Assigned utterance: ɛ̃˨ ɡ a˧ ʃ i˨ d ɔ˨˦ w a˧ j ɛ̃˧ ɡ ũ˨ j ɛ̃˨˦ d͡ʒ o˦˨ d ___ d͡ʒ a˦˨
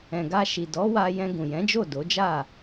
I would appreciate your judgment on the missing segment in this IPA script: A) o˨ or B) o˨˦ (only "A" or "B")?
B